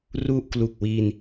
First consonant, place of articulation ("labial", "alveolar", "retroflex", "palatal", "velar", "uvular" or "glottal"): alveolar